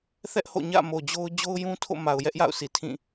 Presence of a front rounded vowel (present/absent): absent